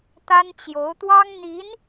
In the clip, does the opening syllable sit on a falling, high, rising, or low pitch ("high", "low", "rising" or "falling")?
high